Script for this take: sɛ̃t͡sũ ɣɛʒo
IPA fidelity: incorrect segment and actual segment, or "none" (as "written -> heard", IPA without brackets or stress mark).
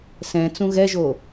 none